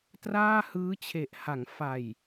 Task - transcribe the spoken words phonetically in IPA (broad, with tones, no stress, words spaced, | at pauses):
traː˥˩hɯː˦˥t͡ɕʰe˨˩ʔ ha˩˦ŋfa˨˩j